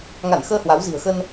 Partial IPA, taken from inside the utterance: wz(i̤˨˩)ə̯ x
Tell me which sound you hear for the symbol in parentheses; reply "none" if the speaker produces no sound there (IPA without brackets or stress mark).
i̤˨˩